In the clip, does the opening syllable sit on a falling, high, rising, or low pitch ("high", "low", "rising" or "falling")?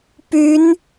rising